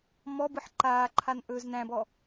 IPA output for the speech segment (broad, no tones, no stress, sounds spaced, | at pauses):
m ɔ b ɯ ħ ǃ aː ǃʰ a n ʔ ɵː z n æ̃ b ɔ